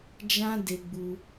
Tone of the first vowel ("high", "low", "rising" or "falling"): high